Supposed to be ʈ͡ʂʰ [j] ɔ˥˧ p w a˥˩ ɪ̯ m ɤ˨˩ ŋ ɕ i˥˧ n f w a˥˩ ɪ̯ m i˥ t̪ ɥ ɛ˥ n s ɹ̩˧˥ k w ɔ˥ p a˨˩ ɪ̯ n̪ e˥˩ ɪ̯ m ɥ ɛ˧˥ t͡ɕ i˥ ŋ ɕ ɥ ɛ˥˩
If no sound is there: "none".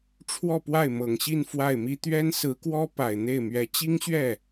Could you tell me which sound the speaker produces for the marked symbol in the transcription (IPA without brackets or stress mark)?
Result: w